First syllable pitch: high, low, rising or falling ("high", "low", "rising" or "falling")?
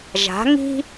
rising